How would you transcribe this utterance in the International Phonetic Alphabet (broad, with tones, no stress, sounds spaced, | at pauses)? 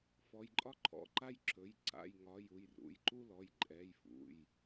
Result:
f ɔ˩˧˩ j ǃʼ ɒ˦ ǃʰ ɔ̰˩˧˩ ǃ a˦ j ǁ ɵ˩˧˩ j ǀ a̰˩˧˩ j ŋ ɒ˩˧˩ j u˩˧˩ j r ṵ˩˧˩ j ǃ u˦ l ɔ˩˧˩ j ǃʼ ɛ˩˧˩ j f ṵ˩˧˩ j